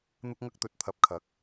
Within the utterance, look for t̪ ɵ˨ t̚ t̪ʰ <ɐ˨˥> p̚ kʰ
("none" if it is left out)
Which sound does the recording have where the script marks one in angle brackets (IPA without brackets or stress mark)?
ɐ˨˥